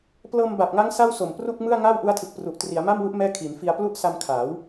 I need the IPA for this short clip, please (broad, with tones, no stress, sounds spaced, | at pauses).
p l ɤː˧ m b a˨˩ p̚ ŋ a˦˥ ŋ s a˥˩ w s o˨˩ m p r u˥˩ k̚ m ɯ˥˩ a̯ ŋ aː˥˩ w ʔ u˦˥ a̯ tʰ ɯ˨˩ k̚ p r u˨˩ ʔ t r i˩˦ a̯ m a˥˩ m w u˦˥ ʔ m ɛː˥˩ kʰ i˩˦ n f i˧ a̯ p l u˥˩ ʔ s a˧ m kʰ aː˩˦ w